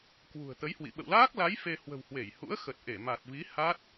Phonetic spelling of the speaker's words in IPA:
k w ṳ˨˩ ə̯ t̪ ə˨˦ j h w ḭ˧˨ ɓ ə̰˧˨ w l aː˦˥ k̚ l a˨˦ j f e˧ h w ə̤˨˩ w h w e˧˩ j h ṵ˧˥ ə̯ x ə˨˩ t̚ ʔ e˧˩ m a˨˩ t̚ v i˨˦ h a˦˥ t̚

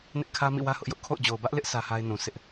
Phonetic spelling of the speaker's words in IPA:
n ɪ˦ ʔ kʰ ä˦ m ḭ˦˨ w ä˦ h ʊ˦ ʔ j ʊ˦ ʔ kʰ o̰˦˨ ʊ̯ d͡ʑ o˨ ʊ̯ b ä˦ ʔ l ɪ˦ ʔ s ä˦ h a˦ ɪ̯ n ũ˨ s ɪ˦ ʔ

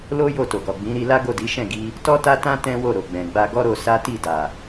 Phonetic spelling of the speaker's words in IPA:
l o˦ j o˦˨ t o˨ ɡ ɔ˨ ɡ͡b ĩ˨˦ ɾ i˧ l a˦ ɡ o˦˨ d i˨˦ ʃ ɛ̃˦˨ ɡ i˧ | t ɔ˦ t a˦ t ã˦ t ɛ̃˦ w o˦˨ ɾ o˨ ɡ͡b ɛ̃˨ ɡ͡b a˧ ɡ ɔ˦ ɾ o˧ s a˦ t i˦˨ d a˨

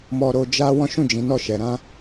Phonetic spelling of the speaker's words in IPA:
m ɔ˧ ɾ o˧ d͡ʒ a˦ w ɔ̃˦ ʃ ũ˦˨ d͡ʒ ĩ˨˦ n ɔ˦˨ ʃ ɛ˨ ɾ ã˧

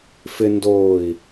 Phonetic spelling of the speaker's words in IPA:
f ɪ n d oː i̯

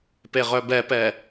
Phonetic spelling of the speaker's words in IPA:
p e ʁ œ b ɛ p ɛ

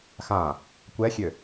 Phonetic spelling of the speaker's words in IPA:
x ã | kʷ ɛ xʲ ø

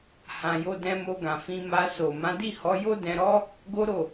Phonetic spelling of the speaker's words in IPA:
h ã˧ j o˧ d ɛ̃˧ m o˧ ɡ ã˨ f ĩ˧ m a˧ s o˨ m ã˨˦ d i˦˨ h ɔ˨˦ j o˦ d ɛ̃˧ ɾ ɔ˦ | ɡ o˦ ɾ o˦˨

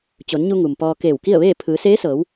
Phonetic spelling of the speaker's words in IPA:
t͡ɕ o˩˧ n ɲ u˧ ŋ u˩ m p ɔː˧ k eː˧˩ w k i˥˨ ə̯ ʋ eː˥˨ pʰ ɯː˩˧ s eː˧˥ s ɤː˩˧ w

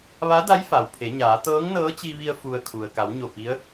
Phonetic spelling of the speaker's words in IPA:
ʋ a˧˥ d a˧˥ j f a˩ w pʰ e˩˧ ɲ aː˩˧ t̪ ɤː˧˥ ŋ n ɤː˧˥ t͡ɕ i˧ ʋ i˧ ə̯ f u˧ ə̯ kʰ u˩ ə̯ k a˩˧ w ɲ o˧˩ p i˧˥ ə̯

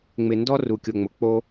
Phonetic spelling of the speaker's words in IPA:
ŋ͡m ɪ˧ n d ɔ˦ r u˧ kʲ o˧ ŋ͡m ʊ˧ k͡p o˦

